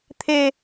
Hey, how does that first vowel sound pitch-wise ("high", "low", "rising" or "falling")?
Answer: low